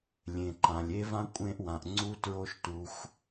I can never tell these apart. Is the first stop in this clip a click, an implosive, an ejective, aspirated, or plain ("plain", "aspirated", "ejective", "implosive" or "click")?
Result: click